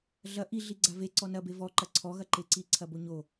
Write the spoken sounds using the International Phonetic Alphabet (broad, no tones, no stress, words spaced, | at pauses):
ɮɐ ʔi ɮiɡ͡ǀave ǀɔnɐbe vɔǃɐ ǀʰɔɣɐǃeǀi ǀʰɐboɲo